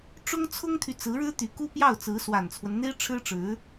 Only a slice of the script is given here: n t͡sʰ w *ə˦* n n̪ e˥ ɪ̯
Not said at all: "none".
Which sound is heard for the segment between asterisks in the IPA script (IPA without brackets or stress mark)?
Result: ə˦